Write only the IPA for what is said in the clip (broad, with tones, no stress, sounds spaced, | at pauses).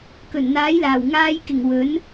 k ɵ˨˩ n n̪ aː˨˥ j l aː˨˩ w ŋ aː˧ j k ɪ˨˩ ŋ w ɵ˨˥ n